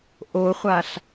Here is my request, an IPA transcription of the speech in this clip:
ʔ o χʷ a ɬ

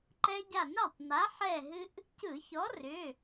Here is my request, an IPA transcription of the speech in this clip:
ǃ ɛ˧ ɟ a˧˩ n a˥˩ tˤ n a˨˥ ħ ɛ˧˩ ɦ ɨ˧ ʔ | c ɯ˧˩˧ ç ɔ˨˥ r ʏ˩˧˩

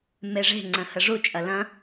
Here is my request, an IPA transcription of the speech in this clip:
m e ʐ e̤ ŋ͡ǀ ə̃ h ə ʐ u t͡ʃʼ ɐ l ɐ̃

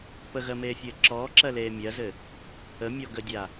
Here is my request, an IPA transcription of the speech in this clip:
p ə ɣ ɜ m eː fʲ ɘː ǁ ɔː ǁ ɜ l eː mʲ ɜ z ɘ | ə mʲ ɔ ɡ ə dʲ a

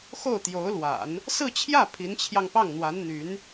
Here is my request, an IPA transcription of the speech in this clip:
x o˥˩ ʊ̯ t̪ j o˧˥ ʊ̯ l w a̰˨˩˦ n | s ɹ̩˥˧ t͡ɕʰ j ä˥˩ pʰ i˧˥ n t͡ɕʰ j ɑ˧ ŋ p ɑ˥˩ ŋ n̪ w a˧˥ n n̪ y˧˥ n

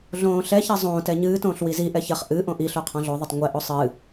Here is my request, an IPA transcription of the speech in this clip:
ɮ õː ɬ ɛ ç ɐ zˤ õː t ɛ ɲ ɨː t õː ɬ w i z i ʔ ɛ ç ɐ χ ʔ ɨ ʔ õ ʔ i ɬ o qʰ ɔ̃ ɮ o ðˤ i tˤ ŋʷ ɛ ʔ o sˤ ɨː

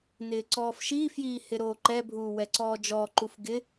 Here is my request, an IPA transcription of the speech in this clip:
n ɪː ǀ ɔː f ʃ iː f j iː h ɪ ɾ oː ǃ ɛ bʱ uː w ɛ ǀ ɔː d͡ʒ ɔ ǃ u f ɡ ɪ

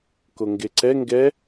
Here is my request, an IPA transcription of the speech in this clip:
k o ŋ ɡ e ǀ ɛ ŋ ɡ ɛ

